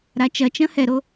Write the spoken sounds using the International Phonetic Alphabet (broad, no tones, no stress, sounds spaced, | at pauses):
ɾ a t͡ʃ ɐ t͡ʃ ɐ̃ h ɛ ɾ o